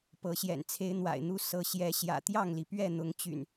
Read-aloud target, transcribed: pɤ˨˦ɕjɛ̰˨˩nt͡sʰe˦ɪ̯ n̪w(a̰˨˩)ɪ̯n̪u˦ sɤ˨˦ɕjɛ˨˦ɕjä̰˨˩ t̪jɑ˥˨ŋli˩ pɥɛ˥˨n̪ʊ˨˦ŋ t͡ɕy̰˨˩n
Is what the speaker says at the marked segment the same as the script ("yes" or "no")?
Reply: yes